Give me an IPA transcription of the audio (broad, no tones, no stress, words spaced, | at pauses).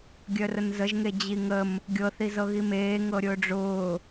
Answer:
ɡʲœrənzəʒŋe d͡ʑiŋəm | ɡʲɤθi zɤɣimeː ŋɤɾʲʊːɖ͡ʐʊː